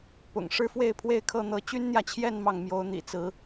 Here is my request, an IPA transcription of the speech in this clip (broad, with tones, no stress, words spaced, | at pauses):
pʊ̰˨˩ŋ ʂɻ̩˥fwe˥˧ɪ̯pʰwe˥˧ɪ̯kʰɤ˥˩ n̪ɤ˧˥ t͡ɕy˥nn̪jä˨t͡ɕʰjɛ˥˧n mɑ˥˩ŋmjo˧˥ʊ̯n̪ḭ˨˩t͡sɹ̩˧˥